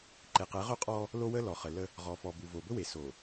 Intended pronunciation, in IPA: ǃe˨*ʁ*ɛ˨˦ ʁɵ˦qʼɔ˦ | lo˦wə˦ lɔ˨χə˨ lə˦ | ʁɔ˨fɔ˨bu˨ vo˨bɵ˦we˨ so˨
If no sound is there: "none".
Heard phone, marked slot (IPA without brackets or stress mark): q